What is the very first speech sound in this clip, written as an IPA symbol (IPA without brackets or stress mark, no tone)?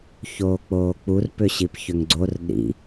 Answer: ç